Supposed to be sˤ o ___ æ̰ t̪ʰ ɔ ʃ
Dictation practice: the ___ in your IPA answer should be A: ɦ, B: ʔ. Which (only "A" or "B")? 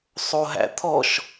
A